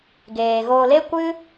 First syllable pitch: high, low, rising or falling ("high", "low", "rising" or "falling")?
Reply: low